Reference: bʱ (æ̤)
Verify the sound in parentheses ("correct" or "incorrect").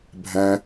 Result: incorrect